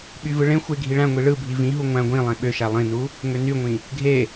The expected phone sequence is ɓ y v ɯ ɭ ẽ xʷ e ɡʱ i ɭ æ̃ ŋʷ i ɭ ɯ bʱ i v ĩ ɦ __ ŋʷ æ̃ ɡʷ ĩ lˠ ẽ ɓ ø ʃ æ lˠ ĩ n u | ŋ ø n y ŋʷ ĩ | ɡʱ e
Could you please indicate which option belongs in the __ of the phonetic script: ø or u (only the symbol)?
u